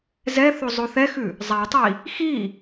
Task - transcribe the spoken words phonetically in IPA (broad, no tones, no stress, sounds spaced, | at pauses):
z ɛ θ o zˤ o θ ɛ x ʉ | zˤ a tˤ i | x i